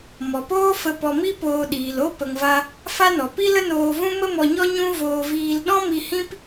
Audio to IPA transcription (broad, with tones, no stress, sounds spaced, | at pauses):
m ɔ˨ p oː˦ f ə˧ p ɔ˧ m i˦ p oː˧ ɗ iː˨ l o˦ p ə˧ ŋ v a˦ | f a˦ n ɔ˨ p i˦ l ə˦ n oː˧ v ũ˦ m ə˦ m ɔ˧ ɲ ɔ˦ ɲ ũ˦ v oː˧ v iː˧ l ɗ ɔ̃˦ m i˧ h ĩ˦ p